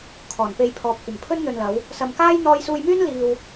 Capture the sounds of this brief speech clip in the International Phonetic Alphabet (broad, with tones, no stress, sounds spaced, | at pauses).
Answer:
kʰ ɔː˨˩ n p e˧ j pʰ ɔː˨ p̚ kʷ ɐ˨˩ m pʰ ɵ˥ n n̪ ɵ˨ n l ɐ˨˧ w | s ɐ˨ m k aː˥ j n̪ ɔː˧ j s uː˧ j m yː˥ n l iː˧ w